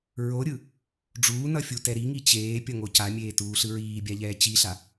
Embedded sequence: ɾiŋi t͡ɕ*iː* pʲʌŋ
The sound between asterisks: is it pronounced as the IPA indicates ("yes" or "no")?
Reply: no